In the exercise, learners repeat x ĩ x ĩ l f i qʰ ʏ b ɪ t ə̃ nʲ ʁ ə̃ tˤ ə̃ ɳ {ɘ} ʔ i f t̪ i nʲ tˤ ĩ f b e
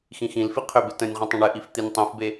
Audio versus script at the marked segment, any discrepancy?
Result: no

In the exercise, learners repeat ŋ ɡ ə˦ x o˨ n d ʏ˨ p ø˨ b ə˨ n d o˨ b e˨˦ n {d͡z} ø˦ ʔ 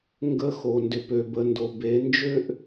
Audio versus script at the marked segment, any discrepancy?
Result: yes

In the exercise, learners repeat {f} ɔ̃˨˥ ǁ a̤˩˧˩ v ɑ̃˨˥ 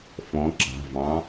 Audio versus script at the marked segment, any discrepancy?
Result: no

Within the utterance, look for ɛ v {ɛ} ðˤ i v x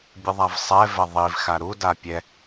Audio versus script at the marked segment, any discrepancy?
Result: no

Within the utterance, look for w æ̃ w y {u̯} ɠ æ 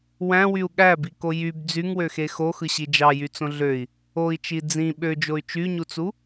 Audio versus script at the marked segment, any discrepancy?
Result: no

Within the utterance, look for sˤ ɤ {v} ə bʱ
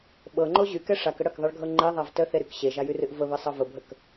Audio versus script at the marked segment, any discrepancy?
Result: no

